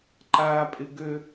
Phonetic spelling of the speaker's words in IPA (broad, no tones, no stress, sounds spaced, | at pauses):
ǃ aː pʼ ɪ ɡ ø